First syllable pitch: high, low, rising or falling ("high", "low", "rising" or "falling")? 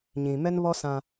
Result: low